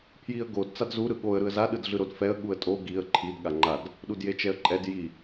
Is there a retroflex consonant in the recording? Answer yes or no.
no